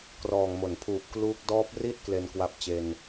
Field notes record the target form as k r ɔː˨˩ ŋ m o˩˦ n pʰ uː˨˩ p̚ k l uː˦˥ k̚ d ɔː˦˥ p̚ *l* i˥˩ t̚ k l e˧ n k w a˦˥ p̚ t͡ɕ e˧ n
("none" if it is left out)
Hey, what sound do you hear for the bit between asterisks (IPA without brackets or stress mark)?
r